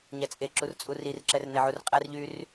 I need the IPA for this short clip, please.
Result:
ɲ æ t͡sʼ e ǁ u r t͡sʼ u r i r ǁ ɛ r n e ʕ u r qʼ æ r ʎ yː r

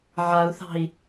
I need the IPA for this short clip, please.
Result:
ʕ a u̯ θ ɑ̤ i̯

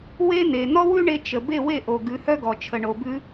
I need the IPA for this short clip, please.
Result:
w e˥ n̪ e˩ n̪ ɔ˥ w ʉ˥ ɳ e˧ t͡ʃ ə˩ b e˥˩ w e˥˩ ʔ o˩ ɡ ʉ˩˥ h œ˥ ɡ ɔ˩ t͡ʃʰ ə˩ ɳ o˩ b ʉ˧

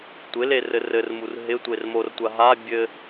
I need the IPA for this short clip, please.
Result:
tʷ ɪ l e r ɘ r ɘ r m u r ɦ ɪ tʷ e r m o r tʷ a ɦ a bʲ ɘ

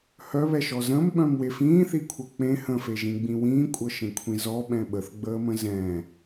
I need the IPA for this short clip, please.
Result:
h œ β ɛ ʃ ɔ z ə̃ m ɓ œ̃ m w e f ĩː θ i kʷʰ ɤ k͡p ẽ h ə̃ f e ʒ ĩ ɡ͡b ĩ w ĩː kʷʼ ɤ ʃ ẽ kʷʰ ĩ z ɔ ɓ ɛ̃ ɓ ə θ ɡ͡b əː m ə̃ z ɛ̃

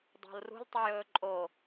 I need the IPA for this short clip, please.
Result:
dˤ o̤ l r ṳ l tˤ u j ɵː ǃʼ o

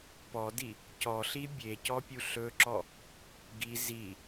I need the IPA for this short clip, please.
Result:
p ɔ d i | c ɔ ɬ i bʲ e c ɔ pʲ u ɬ ɵ ǁ ɔ | ɡ i z i

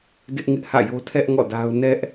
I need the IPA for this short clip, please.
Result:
d ɪ˦ ʔ ŋ ɪ˦ ʔ h ä̰˦˨ j o˦ tʰ ɛ˦ ʔ ŋ ɔ̰˦˨ d a˦ ʊ̯ n ɛ˦ ʔ

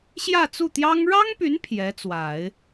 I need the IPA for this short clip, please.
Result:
ɕ j ä˥˧ t͡s u˥˩ t̪ j ɑ˥ ŋ ɻ ɑ˥ ŋ p y˧˥ n pʰ j ɛ˧˥ t͡s w a˨˩˦ ɪ̯

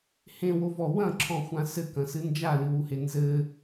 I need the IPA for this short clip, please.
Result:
h ẽ w o v ɔ w ɐ̃ ǁʰ ɔ̃ xʷ ã s ɘ k ɐ̃ s ɨ n d͡ʒ a l ɨ w u h e n z ɘ

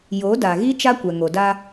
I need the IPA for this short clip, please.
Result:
j o˨˦ d a˨ ɣ i˦ t͡ʃ a˦ kʷ ɛ˨ ŋ o˨ d a˦

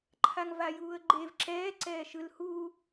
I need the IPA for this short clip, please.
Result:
ǃʰ a ŋ v a j uː ə̯ ɡ͡ǃ e v ǁ ɛː ǀ ɛː ʃ ɯ l h u

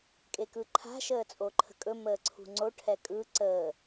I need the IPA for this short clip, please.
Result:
kʼ e k ɯ ǃʰ a̤ ʃ əː t͡sʼ o ǃʰ ə̤ kʼ ɵ m əː ǀʰ ṳ ŋ͡ǀ o ʈʰ ɛ kʼ ɯ ǀ əː

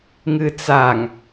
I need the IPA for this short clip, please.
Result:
ŋ ɨ t͡s a ŋ

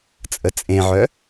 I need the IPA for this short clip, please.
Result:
t͡sʼ ə t͡sʼ ẽ ʕ œ

